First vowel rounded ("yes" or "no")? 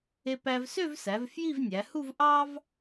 no